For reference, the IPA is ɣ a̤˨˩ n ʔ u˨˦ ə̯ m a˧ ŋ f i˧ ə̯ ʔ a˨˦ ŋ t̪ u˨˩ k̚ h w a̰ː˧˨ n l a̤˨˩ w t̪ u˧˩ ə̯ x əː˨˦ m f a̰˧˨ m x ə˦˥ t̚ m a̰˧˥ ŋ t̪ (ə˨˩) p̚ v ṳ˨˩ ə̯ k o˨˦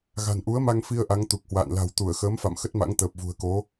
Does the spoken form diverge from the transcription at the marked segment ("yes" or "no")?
yes